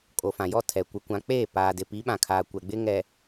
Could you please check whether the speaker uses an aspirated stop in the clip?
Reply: yes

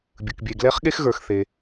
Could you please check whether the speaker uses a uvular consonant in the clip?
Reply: yes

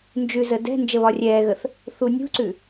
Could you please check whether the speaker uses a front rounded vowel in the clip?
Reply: no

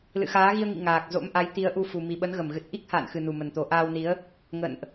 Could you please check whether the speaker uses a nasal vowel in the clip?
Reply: no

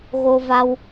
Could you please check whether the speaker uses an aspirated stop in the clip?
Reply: no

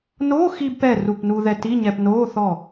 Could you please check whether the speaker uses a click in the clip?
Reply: no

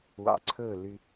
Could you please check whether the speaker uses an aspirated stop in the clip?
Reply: yes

